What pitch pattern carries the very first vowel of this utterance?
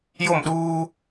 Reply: falling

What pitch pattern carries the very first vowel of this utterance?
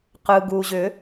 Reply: low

